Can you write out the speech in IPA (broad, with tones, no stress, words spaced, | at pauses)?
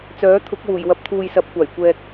t͡sœː˨˥t̪ʰʊ˨˥k̚wuː˨˩j wɐ˨p̚t̪ʰuː˨j sɐ˨˥p̚kʷaː˨˩j kʷɛː˧k̚